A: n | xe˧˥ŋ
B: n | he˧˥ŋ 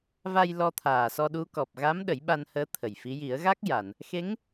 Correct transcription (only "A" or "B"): A